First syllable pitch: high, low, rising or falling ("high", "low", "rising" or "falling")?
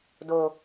low